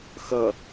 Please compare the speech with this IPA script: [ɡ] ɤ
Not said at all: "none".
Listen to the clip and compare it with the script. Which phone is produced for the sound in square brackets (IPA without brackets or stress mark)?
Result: x